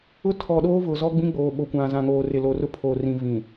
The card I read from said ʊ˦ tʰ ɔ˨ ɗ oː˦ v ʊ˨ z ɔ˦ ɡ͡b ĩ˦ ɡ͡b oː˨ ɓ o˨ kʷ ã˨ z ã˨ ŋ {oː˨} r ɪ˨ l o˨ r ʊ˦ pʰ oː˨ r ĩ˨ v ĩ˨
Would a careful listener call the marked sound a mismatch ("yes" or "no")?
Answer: no